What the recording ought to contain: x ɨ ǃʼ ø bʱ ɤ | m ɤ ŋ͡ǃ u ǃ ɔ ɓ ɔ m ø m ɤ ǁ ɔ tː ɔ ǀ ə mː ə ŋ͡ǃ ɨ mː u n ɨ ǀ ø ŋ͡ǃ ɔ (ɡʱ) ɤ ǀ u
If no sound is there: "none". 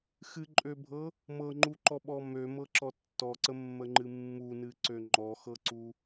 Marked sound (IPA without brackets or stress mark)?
x